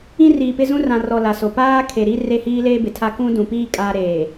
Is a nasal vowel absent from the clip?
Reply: no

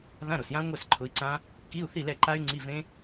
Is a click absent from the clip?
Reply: no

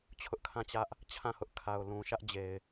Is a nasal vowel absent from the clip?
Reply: no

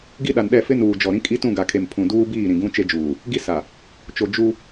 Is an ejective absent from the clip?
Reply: no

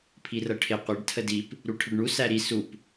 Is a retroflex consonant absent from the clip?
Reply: no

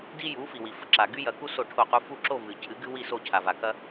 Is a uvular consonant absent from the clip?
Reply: no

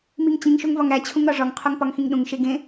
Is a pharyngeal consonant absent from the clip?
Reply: yes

